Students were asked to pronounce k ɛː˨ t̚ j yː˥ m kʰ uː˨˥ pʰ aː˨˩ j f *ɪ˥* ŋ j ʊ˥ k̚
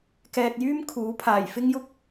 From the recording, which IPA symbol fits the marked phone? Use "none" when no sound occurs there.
ɪ˥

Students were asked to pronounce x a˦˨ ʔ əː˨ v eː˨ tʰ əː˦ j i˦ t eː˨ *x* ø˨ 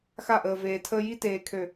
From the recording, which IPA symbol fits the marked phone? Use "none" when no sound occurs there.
kʰ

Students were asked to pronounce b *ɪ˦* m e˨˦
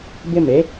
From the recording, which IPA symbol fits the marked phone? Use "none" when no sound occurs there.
ɪ˦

